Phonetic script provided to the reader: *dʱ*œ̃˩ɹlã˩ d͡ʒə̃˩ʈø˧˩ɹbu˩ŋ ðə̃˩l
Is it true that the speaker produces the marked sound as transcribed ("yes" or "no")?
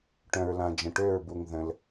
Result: no